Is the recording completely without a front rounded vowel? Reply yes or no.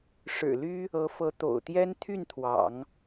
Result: no